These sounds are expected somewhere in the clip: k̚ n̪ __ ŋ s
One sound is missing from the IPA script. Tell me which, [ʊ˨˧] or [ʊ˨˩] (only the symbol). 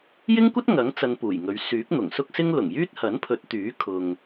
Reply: ʊ˨˩